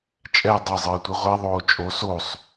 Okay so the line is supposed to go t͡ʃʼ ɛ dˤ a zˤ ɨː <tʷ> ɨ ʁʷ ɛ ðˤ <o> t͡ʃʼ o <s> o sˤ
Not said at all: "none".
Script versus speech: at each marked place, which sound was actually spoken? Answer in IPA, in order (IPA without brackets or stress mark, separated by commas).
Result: tʷ, oː, s